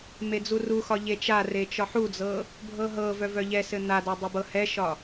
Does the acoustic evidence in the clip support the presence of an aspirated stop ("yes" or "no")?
no